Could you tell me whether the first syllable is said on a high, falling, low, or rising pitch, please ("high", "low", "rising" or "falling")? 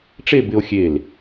falling